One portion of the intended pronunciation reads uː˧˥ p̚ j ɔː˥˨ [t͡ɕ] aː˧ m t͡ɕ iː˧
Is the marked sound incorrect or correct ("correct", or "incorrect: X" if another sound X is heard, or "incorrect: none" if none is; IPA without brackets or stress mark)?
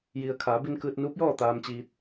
incorrect: t̪